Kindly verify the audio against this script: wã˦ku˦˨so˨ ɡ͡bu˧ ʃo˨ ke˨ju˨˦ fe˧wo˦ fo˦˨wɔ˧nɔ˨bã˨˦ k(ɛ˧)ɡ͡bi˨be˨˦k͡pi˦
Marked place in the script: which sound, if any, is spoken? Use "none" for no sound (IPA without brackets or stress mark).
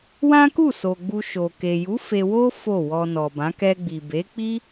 ɛ˧